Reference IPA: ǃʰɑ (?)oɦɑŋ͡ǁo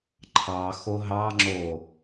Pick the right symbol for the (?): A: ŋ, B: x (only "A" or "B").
B